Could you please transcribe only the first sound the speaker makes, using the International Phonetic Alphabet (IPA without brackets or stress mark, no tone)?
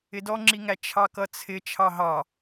ɪ